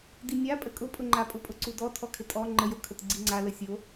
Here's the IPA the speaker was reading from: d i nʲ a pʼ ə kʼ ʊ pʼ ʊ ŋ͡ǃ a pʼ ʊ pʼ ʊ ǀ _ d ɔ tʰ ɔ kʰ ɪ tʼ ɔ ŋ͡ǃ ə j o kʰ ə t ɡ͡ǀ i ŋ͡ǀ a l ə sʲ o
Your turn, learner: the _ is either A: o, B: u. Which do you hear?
B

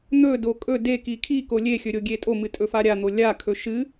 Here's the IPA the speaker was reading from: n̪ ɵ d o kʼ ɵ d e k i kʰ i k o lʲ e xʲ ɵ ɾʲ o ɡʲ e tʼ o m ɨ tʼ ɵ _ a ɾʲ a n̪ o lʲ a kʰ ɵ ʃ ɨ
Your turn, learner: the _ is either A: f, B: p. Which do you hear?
A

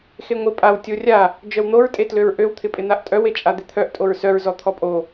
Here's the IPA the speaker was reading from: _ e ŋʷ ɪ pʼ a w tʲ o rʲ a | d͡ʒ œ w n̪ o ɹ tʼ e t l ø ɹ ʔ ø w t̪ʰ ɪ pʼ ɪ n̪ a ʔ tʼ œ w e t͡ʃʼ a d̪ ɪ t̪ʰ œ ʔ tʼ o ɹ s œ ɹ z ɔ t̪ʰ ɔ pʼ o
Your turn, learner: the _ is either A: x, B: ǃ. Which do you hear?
A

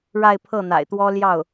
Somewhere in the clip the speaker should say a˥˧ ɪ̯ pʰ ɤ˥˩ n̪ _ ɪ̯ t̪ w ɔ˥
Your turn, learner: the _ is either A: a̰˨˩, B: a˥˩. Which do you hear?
A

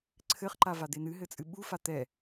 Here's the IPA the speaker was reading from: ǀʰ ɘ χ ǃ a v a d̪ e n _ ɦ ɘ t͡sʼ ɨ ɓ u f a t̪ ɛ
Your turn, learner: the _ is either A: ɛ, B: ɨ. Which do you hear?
B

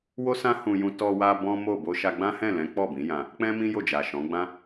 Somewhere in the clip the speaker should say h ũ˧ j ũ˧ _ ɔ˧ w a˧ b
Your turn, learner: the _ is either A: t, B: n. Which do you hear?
A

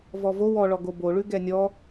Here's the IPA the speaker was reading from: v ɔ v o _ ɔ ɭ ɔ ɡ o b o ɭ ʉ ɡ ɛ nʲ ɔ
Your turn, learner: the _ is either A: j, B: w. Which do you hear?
B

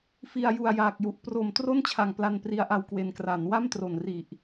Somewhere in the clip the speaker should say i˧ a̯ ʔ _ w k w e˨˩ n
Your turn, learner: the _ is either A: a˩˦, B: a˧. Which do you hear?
B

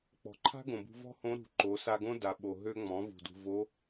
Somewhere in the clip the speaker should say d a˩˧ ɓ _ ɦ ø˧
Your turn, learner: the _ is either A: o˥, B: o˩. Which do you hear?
B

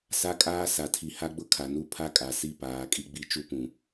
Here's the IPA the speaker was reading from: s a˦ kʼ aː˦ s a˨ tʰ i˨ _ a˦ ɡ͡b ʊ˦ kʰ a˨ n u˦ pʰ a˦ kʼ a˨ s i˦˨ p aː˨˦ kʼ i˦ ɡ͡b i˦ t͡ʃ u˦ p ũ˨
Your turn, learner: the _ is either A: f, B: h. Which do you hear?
B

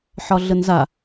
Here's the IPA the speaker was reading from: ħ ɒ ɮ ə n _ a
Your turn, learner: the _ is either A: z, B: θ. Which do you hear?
A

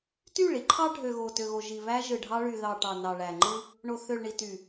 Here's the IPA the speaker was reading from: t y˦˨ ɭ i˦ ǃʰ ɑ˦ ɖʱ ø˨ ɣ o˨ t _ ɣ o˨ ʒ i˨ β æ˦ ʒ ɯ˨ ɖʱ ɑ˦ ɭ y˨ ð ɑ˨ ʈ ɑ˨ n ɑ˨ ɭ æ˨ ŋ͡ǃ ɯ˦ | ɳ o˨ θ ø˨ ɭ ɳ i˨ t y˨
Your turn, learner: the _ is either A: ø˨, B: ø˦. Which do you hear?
A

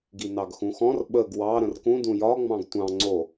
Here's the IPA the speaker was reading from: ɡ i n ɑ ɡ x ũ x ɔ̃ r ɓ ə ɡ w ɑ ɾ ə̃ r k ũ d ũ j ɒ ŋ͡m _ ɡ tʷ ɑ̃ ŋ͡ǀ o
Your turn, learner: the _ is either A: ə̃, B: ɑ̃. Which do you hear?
B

